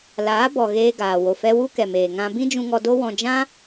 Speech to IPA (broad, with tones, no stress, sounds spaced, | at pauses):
l aː˨˦ b ɔ˨ ɣ eː˧ ɡ aː˨ w o˨ f ɛ˧ w u˦ k ɛ˨ m eː˨ ŋ ã˧ b ĩ˦ d͡ʒ ũ˧ ŋ ɔ˧ d o˦ w ɔ̃˧ d͡ʒ ã˦